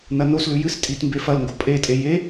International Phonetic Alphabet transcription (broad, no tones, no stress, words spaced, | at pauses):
nɐnoslʉ jɨs tʼitmbefɐlŋɡo pʼetʼe je